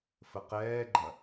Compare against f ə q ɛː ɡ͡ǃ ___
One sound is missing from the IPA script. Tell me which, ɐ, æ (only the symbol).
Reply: ɐ